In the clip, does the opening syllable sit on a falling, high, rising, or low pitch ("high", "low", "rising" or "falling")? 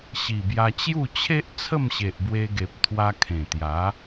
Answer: low